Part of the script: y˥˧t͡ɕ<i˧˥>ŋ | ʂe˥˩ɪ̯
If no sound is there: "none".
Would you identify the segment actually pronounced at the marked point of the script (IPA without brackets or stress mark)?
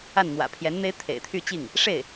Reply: i˥˩